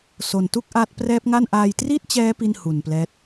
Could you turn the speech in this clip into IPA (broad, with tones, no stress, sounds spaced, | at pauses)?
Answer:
s o˧ n t u˥˩ k̚ ʔ aː˦˥ t̚ p r ɛː˦˥ p̚ ŋ a˥˩ n ʔ aː˧ j t r i˥˩ t̚ t͡ɕ ɛː˦˥ p i˥˩ n h u˨˩ n p l ɛː˦˥ t̚